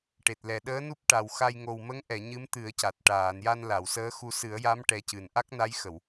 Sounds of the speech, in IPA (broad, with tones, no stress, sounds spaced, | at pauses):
ʈ e˨˩ t̚ l ɛ˨˩ ɗ əː˧˥ n u˦˥ p̚ ʈ a˨˩ w x a˧ j ŋ o˨˩ w m ə˧˥ ŋ ʔ ɛ˨˩˨ ɲ ɨ˧˥ m t̪ ɨ˨˩˦ ə̯ c a˨˩ t̚ ʈ aː˨˩˨ n j a˧ n l a˨˩˨ w s əː˧˥ x u˧ s ɨ˨˩˦ ə̯ j a˧˥ m ʈ ɛ˧˥ c ɨ˨˩ n ʔ a˦˥ k̚ n a˧˥ j x ə˨˩˨ w